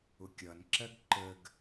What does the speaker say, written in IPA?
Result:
ʊ kʲ ʌ n ǁ ɜ ɡ ǃ ə ɡ

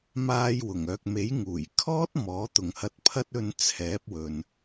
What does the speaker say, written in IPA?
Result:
m aː˧ j w ʊ˨˩ ŋ œː˨ k̚ m e˨˥ j ŋ uː˨˩ j kʰ ɔː˥ t̚ m ɔː˨˥ t̪ ʊ˨ ŋ h ɐ˧ t̚ pʰ ɐ˥ t̚ ɵ˧ n t͡sʰ ɛː˨˥ p̚ w ɵ˨ n

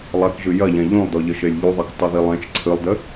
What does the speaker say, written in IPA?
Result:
lˠ a k ʒ ɨ j ɐ ʎ ɛ̃ ʎ ũ lˠ d ɔ ʎ ɘ ʃ e lʲ ʎ u ðˤ e k tˤ u ð i lˠ ẽ t͡ʃ ǀʰ ɨ lˠ d ɘ

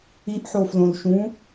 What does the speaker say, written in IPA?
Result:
i ʔ ħ o f l õ l ʃ ũ

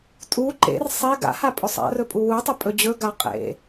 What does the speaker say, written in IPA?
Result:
tʼ u ǃ ḛ r sˤ e ɡ a̰ h a pʼ ɵ sˤ a̰ r ɵ pʼ u w u tˤ ɵ pʼ ɵ d͡ʑ ɵ ɡ a qʼ ḛ

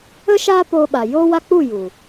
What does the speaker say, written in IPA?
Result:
ə˦ ʃ aː˦ p oː˧ ɓ a˨ j oː˦ w a˦ k͡p u˦˨ j u˨

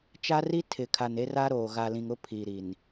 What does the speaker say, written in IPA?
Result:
t͡ʃ a˦ r i˦ tʰ ɪ˨ kʰ a˨ n e˦ r aː˦ ɾ oː˨ ɣ a˨ l ĩ˨ ŋ ʊ˦ pʰ i˨ ɾ i˨ n

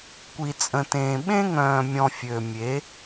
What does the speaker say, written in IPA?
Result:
kʷ i˨ t͡sʼ ə̃˨ t ẽː˨ ɓ ẽ˦ ŋ œ̃ː˨ mʲ ɔ̃˨ fʲ ø˨ mʲ e˨˦

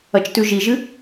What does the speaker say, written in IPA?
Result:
ɐ t͡ʃ t ʉ ʒ i ʒ ɨ

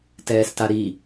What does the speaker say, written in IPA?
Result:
t ɛː s t a ɾ i

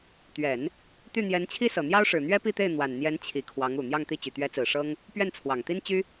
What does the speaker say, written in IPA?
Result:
t̪ ɥ ɛ˨˩˦ n | t̪ y˥˩ n̪ j ɛ˧˥ n t͡ɕʰ i˥ s ɤ˨˩ n̪ j ɑ˥ ʊ̯ ʂ ɻ̩˨˩ n̪ ɥ ɛ˥ p i˥˧ t̪ e˥˩ ɪ̯ n̪ w a˨˩ n n̪ j ɛ˧˥ n t͡ɕʰ i˨˩ kʰ w ɑ˧˥ ŋ u˨˩ n̪ j ɑ˥˧ ŋ t̪ i˥˩ t͡ɕ y˨˩ t̪ ɥ ɛ˧˥ t͡s ɹ̩˨˩ ʂ ɤ˥ ŋ | p ɥ ɛ˥˩ n t͡sʰ w ɑ˨˩ ŋ t̪ i˥ n t͡ɕ y˥

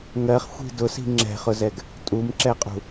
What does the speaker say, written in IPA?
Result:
ŋ ɜ χ xʷ i̤ d ʊ s i̤ ŋ͡ǁ ɛ̤ χ ʊ z ɛ ɡ | tʼ u m ǁ ɛ qʼ ṳ

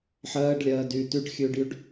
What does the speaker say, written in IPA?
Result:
ħ ɜː ɖ lʲ ɜː d y t y ɖ xʲ ʉː ɖ j y ɖ

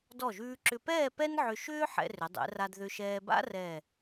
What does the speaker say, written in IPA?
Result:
d ɔ˧˩ ʒ ʉː˧ ǁ ʏ˧ p ɛː˥˧ p ɛ˥ n ʕ ʏ˧ ʃ ʏː˥ ħ ɛ̰˧ r ʏ˩˧ dˤ ɛ̰˩˧ r a˧ d ð ʏ˧ ʃ ɛː˧ b a̰˥ r ɛ˧˩

